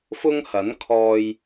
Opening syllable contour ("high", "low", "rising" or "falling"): high